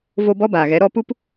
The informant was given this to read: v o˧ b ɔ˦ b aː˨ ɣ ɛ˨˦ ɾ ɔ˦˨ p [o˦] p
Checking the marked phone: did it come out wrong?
yes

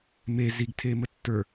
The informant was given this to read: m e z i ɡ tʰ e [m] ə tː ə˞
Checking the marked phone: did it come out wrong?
no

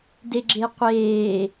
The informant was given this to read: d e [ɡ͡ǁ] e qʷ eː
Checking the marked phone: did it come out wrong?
no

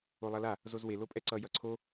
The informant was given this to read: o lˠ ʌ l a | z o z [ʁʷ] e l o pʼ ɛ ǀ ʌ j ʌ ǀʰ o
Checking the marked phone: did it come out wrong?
yes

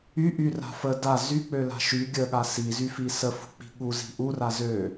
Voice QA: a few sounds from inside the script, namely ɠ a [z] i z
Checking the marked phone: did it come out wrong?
yes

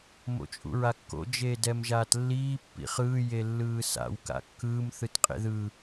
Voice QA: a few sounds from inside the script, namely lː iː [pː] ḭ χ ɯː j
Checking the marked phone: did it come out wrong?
no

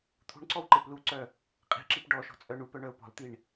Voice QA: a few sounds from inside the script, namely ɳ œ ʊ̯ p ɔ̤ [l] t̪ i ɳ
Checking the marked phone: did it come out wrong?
no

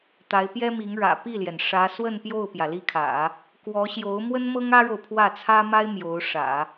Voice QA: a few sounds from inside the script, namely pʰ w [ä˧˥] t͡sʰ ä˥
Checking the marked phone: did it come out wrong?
yes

